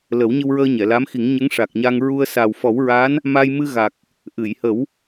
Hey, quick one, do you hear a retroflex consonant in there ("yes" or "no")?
yes